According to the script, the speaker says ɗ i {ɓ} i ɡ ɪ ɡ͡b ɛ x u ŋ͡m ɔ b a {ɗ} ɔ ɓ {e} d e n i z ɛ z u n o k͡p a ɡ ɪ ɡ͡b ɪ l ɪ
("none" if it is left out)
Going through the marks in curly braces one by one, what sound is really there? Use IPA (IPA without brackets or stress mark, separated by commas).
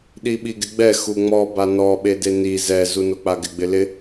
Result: ɓ, n, e